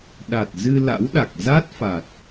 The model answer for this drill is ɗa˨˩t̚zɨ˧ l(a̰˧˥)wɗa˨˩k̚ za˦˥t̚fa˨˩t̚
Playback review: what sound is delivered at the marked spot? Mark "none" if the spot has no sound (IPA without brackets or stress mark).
a̰˧˥